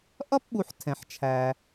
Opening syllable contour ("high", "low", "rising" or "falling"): high